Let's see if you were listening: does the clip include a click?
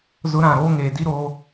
no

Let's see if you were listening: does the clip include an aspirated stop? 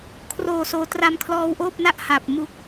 yes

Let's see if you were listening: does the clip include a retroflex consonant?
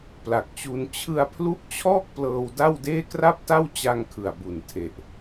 no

